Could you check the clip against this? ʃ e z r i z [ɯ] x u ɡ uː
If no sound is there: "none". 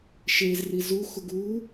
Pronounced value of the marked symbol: u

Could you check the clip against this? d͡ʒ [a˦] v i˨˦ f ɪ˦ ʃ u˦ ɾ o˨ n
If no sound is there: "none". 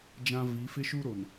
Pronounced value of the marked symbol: ã˦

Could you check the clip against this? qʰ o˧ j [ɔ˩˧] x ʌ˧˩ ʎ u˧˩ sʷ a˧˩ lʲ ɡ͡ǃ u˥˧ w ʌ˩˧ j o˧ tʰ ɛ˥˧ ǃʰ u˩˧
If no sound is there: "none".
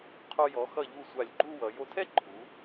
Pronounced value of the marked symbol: ɔ˩˧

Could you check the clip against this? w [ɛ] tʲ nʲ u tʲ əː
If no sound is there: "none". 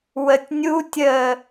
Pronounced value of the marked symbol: ə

